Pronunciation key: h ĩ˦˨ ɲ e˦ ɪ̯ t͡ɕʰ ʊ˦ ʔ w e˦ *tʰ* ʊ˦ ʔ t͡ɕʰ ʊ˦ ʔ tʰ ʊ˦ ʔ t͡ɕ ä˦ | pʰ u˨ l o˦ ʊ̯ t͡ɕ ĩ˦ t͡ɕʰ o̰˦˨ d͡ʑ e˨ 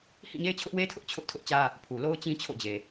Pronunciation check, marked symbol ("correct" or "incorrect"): correct